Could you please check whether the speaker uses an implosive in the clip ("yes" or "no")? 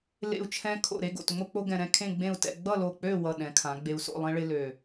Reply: yes